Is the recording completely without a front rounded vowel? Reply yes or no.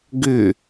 no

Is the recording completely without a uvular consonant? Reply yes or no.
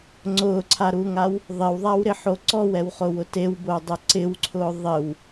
no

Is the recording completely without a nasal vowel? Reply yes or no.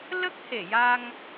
yes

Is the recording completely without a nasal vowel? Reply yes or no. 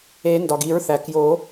yes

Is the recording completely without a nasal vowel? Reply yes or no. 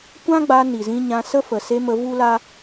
no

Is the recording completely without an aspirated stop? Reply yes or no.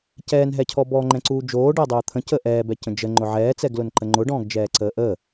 no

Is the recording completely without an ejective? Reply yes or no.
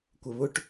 yes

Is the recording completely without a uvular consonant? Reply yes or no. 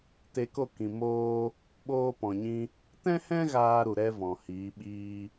yes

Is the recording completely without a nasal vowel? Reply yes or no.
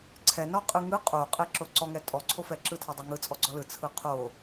yes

